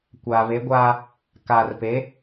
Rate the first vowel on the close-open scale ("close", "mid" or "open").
open